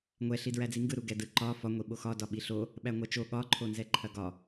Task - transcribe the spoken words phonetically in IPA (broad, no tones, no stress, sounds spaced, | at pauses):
ŋʷ ɛ ɬ i d ɹ æ d͡z i ŋ ɡ ɯ ɾ u ɡ ɛ d ɯ ǃ ɒ f ɒ ŋʷ i ɓ o x ɒ d ɒ ɓ i ɬ o | ɓ æ ŋʷ æ t͡ʃ o ɠ ɒ ǃʰ o n z ɛ ǃʰ ɐ ɡ ɒ